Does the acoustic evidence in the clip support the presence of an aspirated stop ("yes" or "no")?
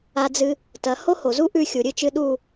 no